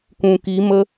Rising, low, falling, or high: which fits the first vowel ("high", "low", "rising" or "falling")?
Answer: low